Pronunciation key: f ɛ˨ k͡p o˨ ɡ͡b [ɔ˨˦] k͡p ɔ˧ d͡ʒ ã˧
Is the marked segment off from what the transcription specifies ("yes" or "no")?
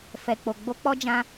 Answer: yes